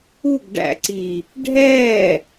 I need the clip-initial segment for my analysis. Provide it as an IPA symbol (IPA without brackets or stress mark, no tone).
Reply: u